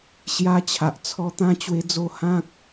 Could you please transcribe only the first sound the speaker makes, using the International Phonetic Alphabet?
ɕ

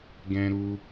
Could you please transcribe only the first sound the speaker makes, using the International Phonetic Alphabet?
ɡ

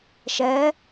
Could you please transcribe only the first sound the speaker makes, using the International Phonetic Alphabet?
ʃ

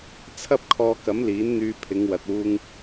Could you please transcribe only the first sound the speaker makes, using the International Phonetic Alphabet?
t͡sʰ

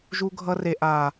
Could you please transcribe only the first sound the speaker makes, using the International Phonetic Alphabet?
ʒ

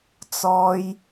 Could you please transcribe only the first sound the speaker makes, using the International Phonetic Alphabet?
t͡s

